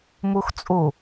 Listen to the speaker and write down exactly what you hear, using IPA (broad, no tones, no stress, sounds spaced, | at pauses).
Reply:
m o x t͡sʼ o